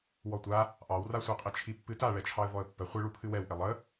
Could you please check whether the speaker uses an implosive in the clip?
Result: no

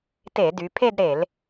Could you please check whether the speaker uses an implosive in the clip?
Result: no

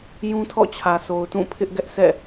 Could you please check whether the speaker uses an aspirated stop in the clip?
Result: yes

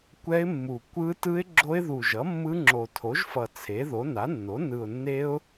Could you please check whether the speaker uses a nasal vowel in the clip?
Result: no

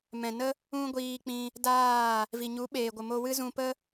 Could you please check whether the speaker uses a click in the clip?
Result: no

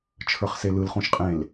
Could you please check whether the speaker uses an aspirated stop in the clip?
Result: yes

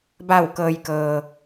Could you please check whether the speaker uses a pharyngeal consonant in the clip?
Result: no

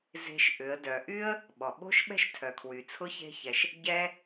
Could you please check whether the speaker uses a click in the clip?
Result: no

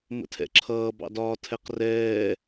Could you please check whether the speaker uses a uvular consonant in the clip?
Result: yes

